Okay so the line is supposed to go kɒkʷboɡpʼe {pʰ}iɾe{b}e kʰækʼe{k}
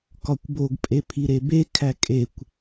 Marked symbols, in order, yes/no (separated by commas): yes, yes, no